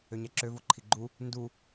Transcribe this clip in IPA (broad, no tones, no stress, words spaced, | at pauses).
øɲæǁø voǃʰiɡ͡ǃu | ndu